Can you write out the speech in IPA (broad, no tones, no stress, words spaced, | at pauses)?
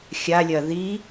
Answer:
xʲalʲɐ ði